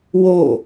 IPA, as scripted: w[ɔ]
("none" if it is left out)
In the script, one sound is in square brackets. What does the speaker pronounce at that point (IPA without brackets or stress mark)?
o